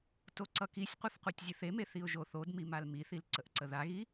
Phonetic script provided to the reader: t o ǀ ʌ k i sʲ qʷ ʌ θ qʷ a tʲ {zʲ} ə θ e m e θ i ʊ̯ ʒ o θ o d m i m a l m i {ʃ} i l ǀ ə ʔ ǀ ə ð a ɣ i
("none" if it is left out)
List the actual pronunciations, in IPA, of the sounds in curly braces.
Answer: zʲ, θ

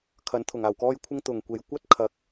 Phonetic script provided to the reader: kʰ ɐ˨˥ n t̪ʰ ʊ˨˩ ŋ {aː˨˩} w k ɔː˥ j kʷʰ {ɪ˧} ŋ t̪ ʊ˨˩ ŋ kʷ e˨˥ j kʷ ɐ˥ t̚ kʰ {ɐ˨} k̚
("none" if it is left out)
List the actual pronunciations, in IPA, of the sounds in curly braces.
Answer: aː˨˩, ɪ˥, ɐ˨˥

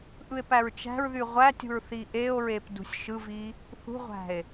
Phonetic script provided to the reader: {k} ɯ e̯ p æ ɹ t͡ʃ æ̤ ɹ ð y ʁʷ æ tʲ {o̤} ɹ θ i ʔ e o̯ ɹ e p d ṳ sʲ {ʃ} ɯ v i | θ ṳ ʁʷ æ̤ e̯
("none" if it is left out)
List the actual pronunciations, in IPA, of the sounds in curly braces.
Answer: ʔ, ṳ, ʃ

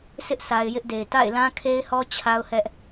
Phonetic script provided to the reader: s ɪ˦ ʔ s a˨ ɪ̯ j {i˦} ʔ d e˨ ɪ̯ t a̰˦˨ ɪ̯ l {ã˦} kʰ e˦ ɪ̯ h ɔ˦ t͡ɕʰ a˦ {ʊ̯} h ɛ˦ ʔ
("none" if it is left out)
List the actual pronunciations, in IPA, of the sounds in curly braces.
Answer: ɪ˦, ã˦, ʊ̯

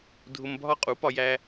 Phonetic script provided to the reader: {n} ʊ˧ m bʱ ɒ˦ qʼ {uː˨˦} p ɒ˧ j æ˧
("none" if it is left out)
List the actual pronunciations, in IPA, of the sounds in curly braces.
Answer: dʱ, u˨˦

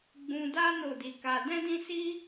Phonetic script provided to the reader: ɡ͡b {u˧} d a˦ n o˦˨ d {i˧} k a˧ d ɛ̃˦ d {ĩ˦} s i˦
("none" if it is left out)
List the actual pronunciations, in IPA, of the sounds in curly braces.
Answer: ũ˧, i˧, ĩ˦

